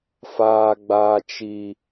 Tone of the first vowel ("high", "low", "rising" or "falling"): high